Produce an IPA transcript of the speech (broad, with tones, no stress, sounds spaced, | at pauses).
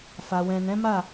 f a˨ w ɛ̃˨ n ɛ̃˨˦ m a˦˨